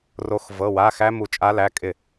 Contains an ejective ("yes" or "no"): yes